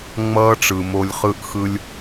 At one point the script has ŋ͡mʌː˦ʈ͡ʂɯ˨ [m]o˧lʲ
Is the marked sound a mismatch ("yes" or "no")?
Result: no